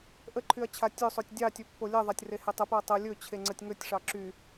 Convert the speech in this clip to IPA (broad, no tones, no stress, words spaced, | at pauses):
ʔəǃʰyɐ̯ t͡ɕʰatʲɵsˤotʲ dʲɑtʲɵ pːolʲɛðˤatʲ rehetˤəpɵɐ̯ tˤə lʲɵ t͡ɕʰeŋ͡ǀətʲŋɵtʲʂɑ ǁy